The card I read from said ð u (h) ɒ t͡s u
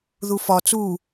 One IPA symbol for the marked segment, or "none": f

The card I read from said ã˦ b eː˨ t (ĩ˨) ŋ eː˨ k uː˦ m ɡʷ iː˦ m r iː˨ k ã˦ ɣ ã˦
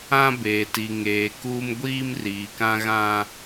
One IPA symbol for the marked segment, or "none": i˨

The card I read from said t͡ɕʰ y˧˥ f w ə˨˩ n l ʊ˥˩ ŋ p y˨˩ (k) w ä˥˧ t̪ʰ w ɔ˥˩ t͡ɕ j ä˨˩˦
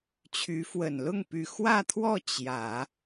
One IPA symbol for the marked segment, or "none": x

